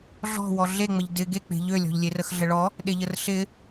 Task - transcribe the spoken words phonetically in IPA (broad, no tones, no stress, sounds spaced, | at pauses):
ɮ ɔ̤ w ɔ ɮ e ŋ͡m ə ʎ d ɪ ɡ e k͡p e̤ ʎ ø lʲ ɔ̤ ʎ lʲ e r ə x ɮ ə ɭ ɔ | ɗ e ʎ ə r ɬ ɪ